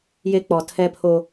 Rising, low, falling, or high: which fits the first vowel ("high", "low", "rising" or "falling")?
high